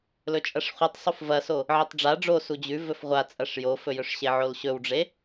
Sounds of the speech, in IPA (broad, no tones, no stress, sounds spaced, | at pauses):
l ɵ t͡ʃʼ ɐ ʂ χʷ i tˤ sˤ u f v ɐ s o | ʕ i tˤ ɖ͡ʐ a ɖ͡ʐ o s u d͡ʑ ʉ v ɵ f ʁʷ a t͡sʼ ɐ ʂ j o f ɵ j ɵ ʂ ɕ e ʕ o l ɕ ɵ w ɖ͡ʐ e